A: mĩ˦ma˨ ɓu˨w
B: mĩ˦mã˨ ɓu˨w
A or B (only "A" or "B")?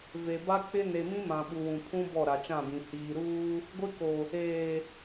B